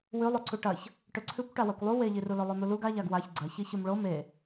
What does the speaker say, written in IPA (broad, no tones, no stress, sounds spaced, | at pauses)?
w ʉ lˠ ʉ ǀ u ʈ ɐ ç | ʈ ɵ ǀʰ ʉ kʷ ʈ a w a kʷ lˠ u w e ʎ i r u l ɵ lˠ o n̪ u l u ɡ a ʎ a ɡ w a ç ɡ͡ǀ ɐ ç i ç ʉ m ɭ o m e